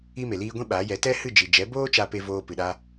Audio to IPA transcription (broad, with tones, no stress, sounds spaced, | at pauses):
i˦ m e˨ l iː˦ ɡʷ ĩ˦ ɓ aː˨˦ j ɛ˨˦ t ɛ˦ h ɨ˦˨ d͡ʒ i˨ d͡ʒ ɛ˨˦ b oː˦ t͡ʃ a˦ p e˦ v oː˧ p ɨ˨ ɗ a˧